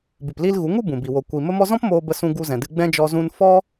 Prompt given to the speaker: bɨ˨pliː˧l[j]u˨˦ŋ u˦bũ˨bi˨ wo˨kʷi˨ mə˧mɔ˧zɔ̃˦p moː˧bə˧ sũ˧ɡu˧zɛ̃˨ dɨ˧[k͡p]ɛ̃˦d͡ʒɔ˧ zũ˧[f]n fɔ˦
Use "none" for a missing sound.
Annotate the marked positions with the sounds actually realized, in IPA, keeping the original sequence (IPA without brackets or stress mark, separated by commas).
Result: ɣ, ɡ͡b, none